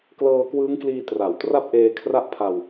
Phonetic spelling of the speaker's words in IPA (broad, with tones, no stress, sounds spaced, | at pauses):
k l ɤː˧ k w ɯː˦˥ ŋ k l iː˧ t r a˨˩ w t r a˥˩ p̚ ʔ eː˧ kʰ r a˥˩ ʔ pʰ a˧ w